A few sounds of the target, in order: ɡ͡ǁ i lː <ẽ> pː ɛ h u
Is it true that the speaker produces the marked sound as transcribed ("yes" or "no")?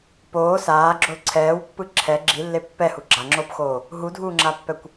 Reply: no